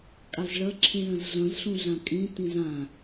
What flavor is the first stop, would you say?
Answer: ejective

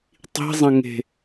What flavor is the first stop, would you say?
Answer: plain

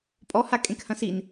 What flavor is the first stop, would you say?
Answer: ejective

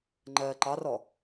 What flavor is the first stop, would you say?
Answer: click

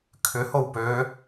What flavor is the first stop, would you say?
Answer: aspirated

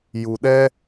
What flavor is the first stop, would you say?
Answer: implosive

